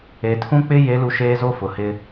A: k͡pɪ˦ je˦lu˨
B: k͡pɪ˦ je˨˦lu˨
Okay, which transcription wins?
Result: B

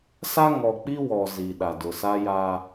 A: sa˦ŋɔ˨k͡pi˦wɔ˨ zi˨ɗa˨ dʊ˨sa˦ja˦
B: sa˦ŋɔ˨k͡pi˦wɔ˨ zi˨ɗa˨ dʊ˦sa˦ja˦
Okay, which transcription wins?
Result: A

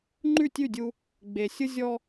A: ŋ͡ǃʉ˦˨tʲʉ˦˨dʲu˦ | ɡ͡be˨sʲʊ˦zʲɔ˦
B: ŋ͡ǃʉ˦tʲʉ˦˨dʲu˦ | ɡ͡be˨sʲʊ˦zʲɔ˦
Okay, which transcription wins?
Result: A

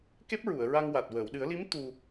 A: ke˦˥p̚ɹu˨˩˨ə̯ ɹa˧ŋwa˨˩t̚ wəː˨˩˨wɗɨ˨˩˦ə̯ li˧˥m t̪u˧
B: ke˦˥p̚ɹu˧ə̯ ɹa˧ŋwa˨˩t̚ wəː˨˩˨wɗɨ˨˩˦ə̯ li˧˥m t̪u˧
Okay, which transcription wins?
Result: A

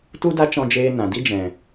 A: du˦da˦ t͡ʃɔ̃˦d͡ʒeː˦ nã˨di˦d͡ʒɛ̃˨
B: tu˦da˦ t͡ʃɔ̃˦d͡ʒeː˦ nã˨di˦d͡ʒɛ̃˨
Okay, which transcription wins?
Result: B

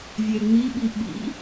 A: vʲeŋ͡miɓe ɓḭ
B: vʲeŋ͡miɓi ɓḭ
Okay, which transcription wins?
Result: B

